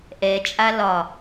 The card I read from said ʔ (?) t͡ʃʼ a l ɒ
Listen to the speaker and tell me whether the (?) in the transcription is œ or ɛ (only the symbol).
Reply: ɛ